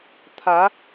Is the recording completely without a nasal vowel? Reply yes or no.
yes